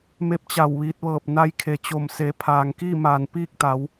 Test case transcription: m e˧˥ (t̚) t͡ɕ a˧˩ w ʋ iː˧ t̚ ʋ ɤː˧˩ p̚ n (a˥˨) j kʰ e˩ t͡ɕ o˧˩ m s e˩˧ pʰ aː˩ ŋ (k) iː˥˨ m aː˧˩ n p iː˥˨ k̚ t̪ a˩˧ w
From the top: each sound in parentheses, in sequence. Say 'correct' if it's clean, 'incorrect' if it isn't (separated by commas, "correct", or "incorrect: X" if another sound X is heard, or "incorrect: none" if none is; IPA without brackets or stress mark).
incorrect: p̚, incorrect: a˧, correct